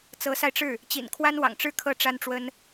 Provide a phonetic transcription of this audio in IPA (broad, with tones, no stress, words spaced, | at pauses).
t͡sɤ˧˥sa˧ɪ̯ʈ͡ʂɻ̩˥˩ | t͡ɕḭ˨˩nkʰwa˥nwɑ̰˨˩ŋʈ͡ʂɻ̩˥˧ kʰɤ˥˩ʈ͡ʂa˥nʈ͡ʂwə˥n